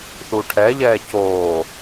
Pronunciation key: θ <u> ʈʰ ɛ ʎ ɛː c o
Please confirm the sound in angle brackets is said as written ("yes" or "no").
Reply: yes